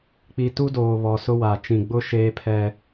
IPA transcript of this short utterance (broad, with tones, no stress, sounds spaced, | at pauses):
k͡p i˨ t u˦ d oː˨ β ɔ˨ s ʊ˦ w a˨ t͡ʃ ĩ˨ ɡ͡b ʊ˦ ʃ eː˦ pʰ ɛ˦